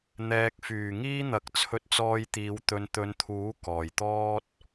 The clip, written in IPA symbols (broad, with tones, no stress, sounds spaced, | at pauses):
n̪ ɛː˨ k̚ f yː˨˩ ŋ iː˥ n̪ ɐ˨˥ k̚ t͡sʰ ɵ˧ t̚ t͡s ɔː˧ j t̪ iː˨˧ w t̪ ɵ˨ n t̪ ɵ˨˧ n t̪ʰ uː˨˥ k ɔː˨˩ j t̪ ɔː˥ t̚